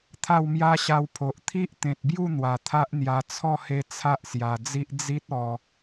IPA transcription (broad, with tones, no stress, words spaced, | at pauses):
t̪ʰa˥˧wmja˦ɕa˧wpʰo˨ʔ t̪ʰi˦ʔt̪ẽ˨t̚bju˥˧ n̪wa˨˩t̪ʰa˦ʔn̪ja˧ t͡sʰɔ˥˧he˧ t͡sʰa˦ʔsja˨˩d͡zi˦ʔ d͡zi˦t̚ ɔ˧